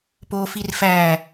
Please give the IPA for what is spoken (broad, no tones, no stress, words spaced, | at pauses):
poːfirfæ